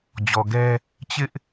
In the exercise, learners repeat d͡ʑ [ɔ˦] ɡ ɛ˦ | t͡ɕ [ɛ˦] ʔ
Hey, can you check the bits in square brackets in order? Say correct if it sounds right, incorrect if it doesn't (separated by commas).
incorrect, incorrect